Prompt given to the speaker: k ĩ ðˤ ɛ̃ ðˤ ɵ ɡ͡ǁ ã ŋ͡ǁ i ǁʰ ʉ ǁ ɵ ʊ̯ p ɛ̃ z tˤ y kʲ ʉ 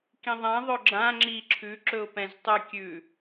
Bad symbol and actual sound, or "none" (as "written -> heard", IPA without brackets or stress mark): none